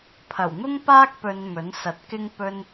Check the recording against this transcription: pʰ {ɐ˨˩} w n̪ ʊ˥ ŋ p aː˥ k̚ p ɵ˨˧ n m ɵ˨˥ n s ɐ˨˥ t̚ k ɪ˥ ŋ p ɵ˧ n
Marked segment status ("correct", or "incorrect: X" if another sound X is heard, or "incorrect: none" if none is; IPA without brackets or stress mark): correct